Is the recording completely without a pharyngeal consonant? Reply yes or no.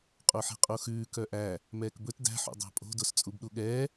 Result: no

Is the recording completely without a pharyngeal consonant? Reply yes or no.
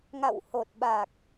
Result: yes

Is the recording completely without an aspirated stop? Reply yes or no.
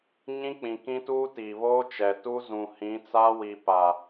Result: yes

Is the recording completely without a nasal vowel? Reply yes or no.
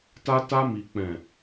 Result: no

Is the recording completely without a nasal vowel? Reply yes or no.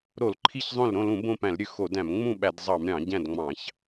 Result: no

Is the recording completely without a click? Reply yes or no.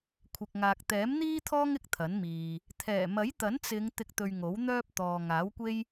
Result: yes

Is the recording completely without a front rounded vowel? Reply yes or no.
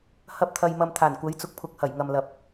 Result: yes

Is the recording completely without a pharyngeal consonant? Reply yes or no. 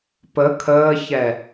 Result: yes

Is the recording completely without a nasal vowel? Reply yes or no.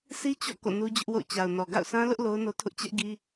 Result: no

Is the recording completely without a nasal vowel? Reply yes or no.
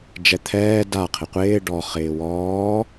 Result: yes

